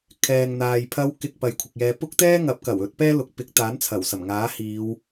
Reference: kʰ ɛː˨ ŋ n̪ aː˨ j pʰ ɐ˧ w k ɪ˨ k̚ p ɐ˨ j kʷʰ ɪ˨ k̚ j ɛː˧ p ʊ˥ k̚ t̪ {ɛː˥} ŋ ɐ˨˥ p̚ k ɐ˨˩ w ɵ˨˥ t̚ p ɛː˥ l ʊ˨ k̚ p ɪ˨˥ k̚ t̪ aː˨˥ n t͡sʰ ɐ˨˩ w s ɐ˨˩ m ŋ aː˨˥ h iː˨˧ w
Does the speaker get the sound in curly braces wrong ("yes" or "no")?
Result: no